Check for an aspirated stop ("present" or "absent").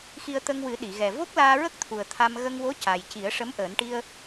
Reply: present